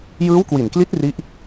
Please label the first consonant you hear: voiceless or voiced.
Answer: voiced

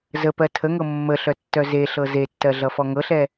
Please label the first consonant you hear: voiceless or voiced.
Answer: voiced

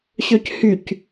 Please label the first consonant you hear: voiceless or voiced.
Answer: voiceless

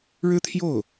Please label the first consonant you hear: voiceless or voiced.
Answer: voiced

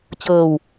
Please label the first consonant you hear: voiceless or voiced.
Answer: voiceless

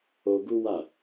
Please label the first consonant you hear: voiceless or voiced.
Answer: voiced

